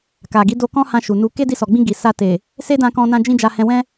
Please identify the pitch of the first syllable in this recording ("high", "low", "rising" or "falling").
low